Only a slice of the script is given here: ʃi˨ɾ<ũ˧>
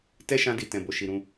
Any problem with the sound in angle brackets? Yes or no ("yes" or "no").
no